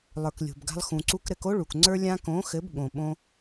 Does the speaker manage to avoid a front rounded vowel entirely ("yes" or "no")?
yes